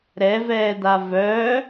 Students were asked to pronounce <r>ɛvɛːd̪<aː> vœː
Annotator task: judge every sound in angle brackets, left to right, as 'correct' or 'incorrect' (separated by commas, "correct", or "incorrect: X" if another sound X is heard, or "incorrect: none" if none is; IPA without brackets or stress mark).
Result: incorrect: ɾ, incorrect: a